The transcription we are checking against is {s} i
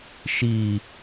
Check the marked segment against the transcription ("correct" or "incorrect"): incorrect